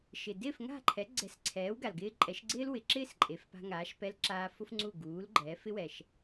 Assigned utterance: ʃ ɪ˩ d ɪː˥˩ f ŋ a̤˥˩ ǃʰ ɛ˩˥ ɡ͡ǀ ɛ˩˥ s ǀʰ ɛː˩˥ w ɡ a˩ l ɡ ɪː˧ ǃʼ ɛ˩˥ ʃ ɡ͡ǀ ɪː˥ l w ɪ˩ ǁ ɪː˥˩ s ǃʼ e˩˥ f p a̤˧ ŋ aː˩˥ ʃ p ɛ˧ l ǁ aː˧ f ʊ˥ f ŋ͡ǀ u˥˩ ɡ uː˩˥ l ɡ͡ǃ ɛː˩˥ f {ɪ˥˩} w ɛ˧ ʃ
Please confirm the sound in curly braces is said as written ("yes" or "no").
no